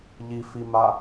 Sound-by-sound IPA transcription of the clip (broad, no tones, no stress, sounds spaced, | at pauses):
ʎ i f i m a